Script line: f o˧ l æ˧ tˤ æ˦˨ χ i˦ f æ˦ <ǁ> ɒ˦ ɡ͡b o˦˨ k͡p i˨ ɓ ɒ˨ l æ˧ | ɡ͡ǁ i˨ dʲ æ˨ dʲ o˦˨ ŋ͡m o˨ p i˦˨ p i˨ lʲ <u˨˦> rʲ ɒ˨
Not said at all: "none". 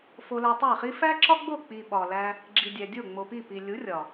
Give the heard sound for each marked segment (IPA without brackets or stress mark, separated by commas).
ǁ, u˨˦